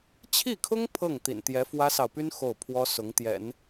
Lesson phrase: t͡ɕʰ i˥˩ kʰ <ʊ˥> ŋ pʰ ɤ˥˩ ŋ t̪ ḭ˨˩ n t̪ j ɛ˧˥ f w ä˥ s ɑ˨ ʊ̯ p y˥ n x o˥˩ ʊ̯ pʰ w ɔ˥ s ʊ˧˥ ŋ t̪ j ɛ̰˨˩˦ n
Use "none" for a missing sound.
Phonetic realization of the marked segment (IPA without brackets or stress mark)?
ʊ˥